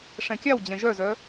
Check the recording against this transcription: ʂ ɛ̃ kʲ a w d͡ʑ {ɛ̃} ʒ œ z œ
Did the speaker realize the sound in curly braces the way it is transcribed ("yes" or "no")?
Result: yes